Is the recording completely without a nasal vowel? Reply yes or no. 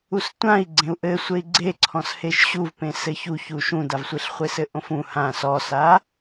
no